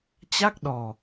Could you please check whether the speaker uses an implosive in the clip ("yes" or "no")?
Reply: yes